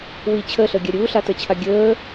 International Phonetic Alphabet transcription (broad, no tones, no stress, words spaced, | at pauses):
wi t͡ɕʰəːɬəːɡʲa ɾʲuːɬatəːt͡ɕʰa ɡʲəː